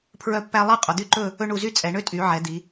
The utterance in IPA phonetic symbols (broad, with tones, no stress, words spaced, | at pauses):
pʰɹœ˥˧pːæ˥ lˠɛ˥˧ qʼo˩˧d̪y˥ ǃɵ˥˧ | ɵ˥ɳu˧zy˥ t͡sʼɛ˩˧ ɳø˥˧tʼy˩˧ ʕɛ˩˧d̪i˩˧